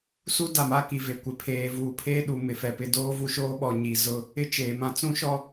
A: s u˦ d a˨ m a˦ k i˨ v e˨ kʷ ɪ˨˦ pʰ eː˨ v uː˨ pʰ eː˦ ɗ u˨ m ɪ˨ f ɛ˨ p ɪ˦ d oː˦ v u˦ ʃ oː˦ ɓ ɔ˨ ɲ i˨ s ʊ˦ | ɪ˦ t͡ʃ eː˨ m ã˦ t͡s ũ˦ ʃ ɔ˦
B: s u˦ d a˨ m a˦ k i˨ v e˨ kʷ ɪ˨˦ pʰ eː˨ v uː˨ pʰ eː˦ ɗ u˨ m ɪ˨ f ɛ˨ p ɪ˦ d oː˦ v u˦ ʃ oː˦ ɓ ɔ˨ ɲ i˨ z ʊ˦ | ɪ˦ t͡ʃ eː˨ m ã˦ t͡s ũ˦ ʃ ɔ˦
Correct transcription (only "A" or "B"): B